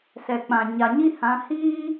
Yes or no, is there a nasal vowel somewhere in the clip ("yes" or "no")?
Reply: yes